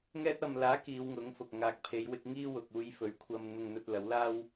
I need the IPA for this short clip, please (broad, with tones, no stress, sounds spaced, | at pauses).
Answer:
ŋ ɛː˧ t̚ ɐ˨ m l aː˨˥ k iː˨˧ w ŋ ʊ˨˥ ŋ f ʊ˨ k̚ ŋ aː˨ k̚ pʰ e˨˧ j w ɪ˧ k̚ ŋ iː˥ w ʊ˨ k̚ uː˧ j f ɵ˨˥ ɥ kʷʰ ɐ˧ m n̪ ʊ˧ ŋ n̪ ɵ˧ t̚ l ɐ˨˥ w l aː˥ w